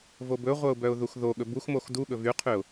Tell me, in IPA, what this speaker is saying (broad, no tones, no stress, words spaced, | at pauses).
vobɵʁʷœʊ̯ bœʊ̯ðuxðoɠɵ buxmox duɠɵ vyqʰyʊ̯